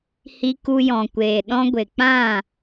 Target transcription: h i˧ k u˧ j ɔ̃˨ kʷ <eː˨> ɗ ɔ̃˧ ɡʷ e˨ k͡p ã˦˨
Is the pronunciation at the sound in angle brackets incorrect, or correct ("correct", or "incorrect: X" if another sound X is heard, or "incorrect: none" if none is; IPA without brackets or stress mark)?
correct